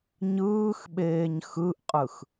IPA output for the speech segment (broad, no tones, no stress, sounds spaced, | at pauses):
ɲ ɯː x ɓ eː ɲ x ɯ ʔ qʼ ɯ x